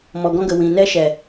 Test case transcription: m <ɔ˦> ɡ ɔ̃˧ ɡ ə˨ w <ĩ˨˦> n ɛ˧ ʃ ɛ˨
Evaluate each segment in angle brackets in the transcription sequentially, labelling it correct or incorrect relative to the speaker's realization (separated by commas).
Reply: incorrect, incorrect